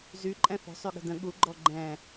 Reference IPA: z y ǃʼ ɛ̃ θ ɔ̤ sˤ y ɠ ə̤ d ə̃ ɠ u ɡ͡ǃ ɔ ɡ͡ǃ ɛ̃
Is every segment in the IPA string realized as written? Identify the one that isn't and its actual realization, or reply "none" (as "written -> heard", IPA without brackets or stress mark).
none